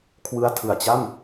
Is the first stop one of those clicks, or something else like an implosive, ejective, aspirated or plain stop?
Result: aspirated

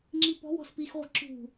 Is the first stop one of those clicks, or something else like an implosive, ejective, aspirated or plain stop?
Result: click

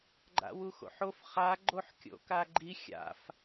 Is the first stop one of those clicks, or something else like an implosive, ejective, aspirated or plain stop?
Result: click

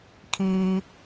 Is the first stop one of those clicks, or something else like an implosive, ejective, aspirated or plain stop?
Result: aspirated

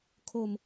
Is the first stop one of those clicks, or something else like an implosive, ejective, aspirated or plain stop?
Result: aspirated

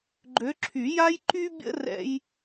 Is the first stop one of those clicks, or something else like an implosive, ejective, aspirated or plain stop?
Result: click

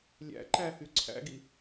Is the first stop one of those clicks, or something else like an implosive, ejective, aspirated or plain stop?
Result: click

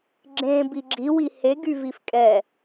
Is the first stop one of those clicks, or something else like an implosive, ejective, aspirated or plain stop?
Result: click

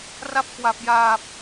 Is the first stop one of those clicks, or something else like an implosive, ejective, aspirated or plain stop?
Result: plain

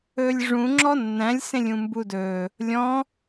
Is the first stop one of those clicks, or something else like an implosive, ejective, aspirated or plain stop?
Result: click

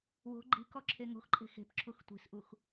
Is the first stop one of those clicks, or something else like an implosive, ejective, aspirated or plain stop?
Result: click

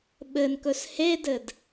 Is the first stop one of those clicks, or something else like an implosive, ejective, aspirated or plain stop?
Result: implosive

